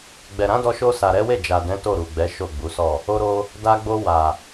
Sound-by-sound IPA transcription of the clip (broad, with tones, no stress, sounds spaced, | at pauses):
ɡ͡b ɛ˨ ɾ ã˨˦ d ɔ˧ ʃ o˧ s a˨ ɾ ɛ˨˦ w e˦˨ d͡ʒ a˨ d ɛ̃˨˦ t o˦˨ ɾ u˨ ɡ͡b ɛ˨˦ ʃ o˦˨ ɡ͡b u˨˦ s ɔ˦˨ | o˧ ɾ o˧ | d a˧ ɡ͡b o˧ w a˨